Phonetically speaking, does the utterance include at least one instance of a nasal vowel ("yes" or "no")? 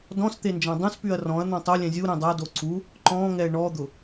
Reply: yes